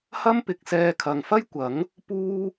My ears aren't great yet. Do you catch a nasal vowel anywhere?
no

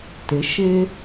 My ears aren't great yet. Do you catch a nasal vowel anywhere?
no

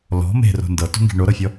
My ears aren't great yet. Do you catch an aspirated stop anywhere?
no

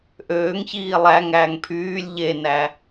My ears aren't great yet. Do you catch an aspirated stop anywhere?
yes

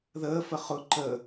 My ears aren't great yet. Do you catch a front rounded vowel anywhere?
no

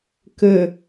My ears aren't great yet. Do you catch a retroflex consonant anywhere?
no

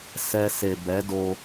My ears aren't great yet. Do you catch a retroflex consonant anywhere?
no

